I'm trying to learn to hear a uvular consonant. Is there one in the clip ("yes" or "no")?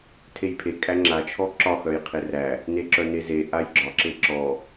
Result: yes